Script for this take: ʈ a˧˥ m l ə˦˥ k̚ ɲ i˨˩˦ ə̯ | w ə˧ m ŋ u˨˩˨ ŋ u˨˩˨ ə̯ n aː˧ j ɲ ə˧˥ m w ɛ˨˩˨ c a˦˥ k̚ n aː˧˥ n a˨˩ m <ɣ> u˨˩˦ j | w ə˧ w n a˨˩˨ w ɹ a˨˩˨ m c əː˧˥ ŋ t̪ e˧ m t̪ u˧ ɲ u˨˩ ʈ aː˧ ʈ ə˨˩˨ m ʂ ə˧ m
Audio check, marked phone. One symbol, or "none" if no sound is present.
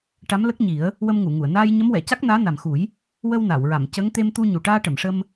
x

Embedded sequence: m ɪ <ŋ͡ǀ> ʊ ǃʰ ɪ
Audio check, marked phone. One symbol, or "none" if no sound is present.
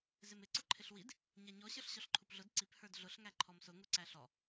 ǀ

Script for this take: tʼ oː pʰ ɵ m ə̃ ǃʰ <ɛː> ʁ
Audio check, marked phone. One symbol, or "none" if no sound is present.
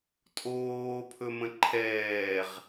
ɛː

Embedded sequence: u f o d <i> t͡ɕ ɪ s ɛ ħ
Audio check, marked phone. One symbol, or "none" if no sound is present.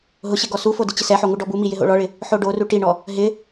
ɪ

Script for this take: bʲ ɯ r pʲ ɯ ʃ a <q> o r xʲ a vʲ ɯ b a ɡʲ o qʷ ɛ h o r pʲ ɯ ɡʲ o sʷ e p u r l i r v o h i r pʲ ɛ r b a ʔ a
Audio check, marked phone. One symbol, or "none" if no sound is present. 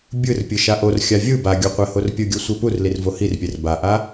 ʔ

